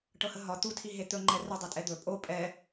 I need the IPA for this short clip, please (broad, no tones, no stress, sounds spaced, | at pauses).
ʈ ɤ h ə ɦ ɒ t̪ u tʰ i ɦ e t̪ ɵ ŋ͡ǃ ɛ r ə dˤ i tʼ ɛ d̪ ɵ pʼ o pʼ ɛ